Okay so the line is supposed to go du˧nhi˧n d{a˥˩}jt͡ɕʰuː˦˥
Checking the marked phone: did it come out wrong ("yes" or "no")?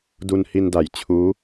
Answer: yes